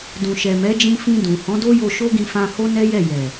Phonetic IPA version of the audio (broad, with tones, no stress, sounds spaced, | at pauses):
d ũ˨ ʃ ɛ˨ m ɛ˨˦ d͡ʒ ĩ˧ f ĩ˧ d ũ˨ h ɔ̃˨˦ d o˦ j o˧ ʃ o˦ ɡ ĩ˧ f ã˧ h o˦ n ɛ˦ j ɛ˦˨ j ɛ˨